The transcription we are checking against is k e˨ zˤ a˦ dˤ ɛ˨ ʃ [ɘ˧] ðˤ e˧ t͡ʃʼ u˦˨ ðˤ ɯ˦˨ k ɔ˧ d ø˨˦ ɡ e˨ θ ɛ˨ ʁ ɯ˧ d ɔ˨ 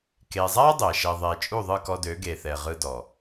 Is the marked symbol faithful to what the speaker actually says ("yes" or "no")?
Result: no